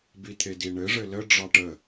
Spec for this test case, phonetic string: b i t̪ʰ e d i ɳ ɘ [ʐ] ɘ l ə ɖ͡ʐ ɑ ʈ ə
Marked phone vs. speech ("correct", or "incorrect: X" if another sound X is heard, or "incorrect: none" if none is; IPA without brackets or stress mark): correct